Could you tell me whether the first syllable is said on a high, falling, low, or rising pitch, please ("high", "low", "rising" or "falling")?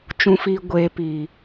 low